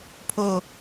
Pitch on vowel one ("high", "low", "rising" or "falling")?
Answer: falling